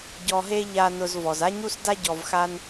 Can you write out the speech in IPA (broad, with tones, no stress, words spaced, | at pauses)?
ɟɔ˧ɦe˥ ʎa˧ nʊ˧z vɔ˩za˥ɲu˥sda˥ ɟɔ˧vxa˥n